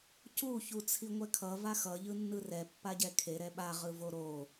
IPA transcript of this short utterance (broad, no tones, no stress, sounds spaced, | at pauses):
c u ç u t͡sʰ i ŋʷ ɛ kʰ ʌ v a x ʌ ʎ ɯ nː ɯ r ɛ pː a ɟ ɛ kʰ e ɾ ɛ ɓ a ʁ ɯ v o ɾ o